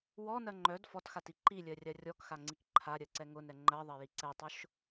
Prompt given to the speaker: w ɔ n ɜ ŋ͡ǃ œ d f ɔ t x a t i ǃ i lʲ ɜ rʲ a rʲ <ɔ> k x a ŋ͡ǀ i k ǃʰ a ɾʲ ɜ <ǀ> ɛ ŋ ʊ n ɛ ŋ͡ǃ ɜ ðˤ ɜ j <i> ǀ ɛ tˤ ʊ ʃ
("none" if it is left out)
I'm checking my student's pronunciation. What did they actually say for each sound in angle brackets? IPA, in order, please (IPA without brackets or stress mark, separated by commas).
ɔ, ǀ, i